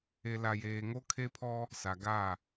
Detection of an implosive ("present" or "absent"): absent